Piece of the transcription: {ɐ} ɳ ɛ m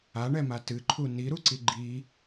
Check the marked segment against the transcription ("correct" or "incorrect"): incorrect